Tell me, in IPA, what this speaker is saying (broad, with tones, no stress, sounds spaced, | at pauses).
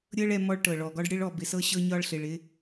ɾʲ ɤ˦ ɭ ɛ˧ m ɔ˧ ɭ ʈ ɤ˨ ɭ ɔ˨ ɡ ɒ˧ ɖ ɽ ɪ˧ ɭ ɔ˨ b ɪ˨ s ɤ˧ ɕ ɤ˧ ɲ ɒ˧ ɭ ɬ ɪ˨ ɭ ɪ˧